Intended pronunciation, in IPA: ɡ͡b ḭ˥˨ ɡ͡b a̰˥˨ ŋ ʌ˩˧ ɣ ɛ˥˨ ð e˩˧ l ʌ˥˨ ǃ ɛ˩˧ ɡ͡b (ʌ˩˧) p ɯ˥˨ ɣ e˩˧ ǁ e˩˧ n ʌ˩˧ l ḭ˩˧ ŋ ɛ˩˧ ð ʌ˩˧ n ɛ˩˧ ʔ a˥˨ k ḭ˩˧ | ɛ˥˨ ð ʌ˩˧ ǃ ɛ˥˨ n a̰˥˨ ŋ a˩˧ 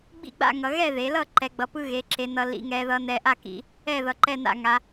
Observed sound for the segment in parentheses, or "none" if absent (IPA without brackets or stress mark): ʌ˩˧